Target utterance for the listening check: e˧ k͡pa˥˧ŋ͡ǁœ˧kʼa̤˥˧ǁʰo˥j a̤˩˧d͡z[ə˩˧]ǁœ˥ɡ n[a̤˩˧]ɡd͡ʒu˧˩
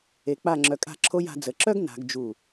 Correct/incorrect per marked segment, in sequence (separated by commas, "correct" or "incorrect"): correct, correct